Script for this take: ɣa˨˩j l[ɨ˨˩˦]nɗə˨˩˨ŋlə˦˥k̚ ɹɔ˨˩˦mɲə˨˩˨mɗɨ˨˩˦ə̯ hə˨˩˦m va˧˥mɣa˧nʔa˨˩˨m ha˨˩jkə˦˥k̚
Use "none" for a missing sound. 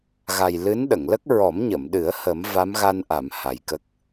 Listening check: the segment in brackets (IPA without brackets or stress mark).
ɨ˧˥